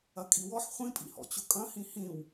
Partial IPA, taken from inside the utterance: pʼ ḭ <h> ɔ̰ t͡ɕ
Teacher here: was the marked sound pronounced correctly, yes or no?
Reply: yes